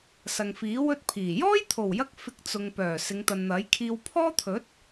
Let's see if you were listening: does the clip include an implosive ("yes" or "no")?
no